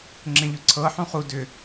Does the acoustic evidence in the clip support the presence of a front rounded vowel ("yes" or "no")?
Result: yes